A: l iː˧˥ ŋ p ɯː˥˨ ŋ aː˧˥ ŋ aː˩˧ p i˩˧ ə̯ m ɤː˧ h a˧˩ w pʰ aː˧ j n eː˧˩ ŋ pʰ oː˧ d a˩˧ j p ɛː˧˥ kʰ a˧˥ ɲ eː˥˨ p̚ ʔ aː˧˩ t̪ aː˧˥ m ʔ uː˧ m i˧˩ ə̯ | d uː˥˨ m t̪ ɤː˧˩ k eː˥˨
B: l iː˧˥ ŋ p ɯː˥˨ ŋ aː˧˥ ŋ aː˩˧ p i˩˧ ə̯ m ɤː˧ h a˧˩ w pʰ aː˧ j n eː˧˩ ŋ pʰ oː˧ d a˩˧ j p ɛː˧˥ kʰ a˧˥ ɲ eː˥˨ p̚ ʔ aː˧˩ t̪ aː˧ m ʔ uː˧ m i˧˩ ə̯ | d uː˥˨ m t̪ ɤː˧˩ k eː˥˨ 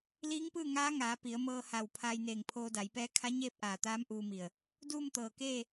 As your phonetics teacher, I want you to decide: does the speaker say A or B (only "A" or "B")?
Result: A